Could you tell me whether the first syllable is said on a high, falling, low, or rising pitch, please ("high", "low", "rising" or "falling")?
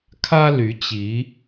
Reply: high